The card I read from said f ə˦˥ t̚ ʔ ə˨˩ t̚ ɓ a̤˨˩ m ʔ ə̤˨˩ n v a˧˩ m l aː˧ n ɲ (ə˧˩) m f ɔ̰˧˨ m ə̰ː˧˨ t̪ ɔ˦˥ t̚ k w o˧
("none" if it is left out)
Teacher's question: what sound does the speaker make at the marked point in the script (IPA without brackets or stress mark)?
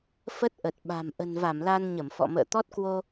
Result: ə˧˩